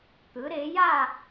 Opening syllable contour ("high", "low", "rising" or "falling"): rising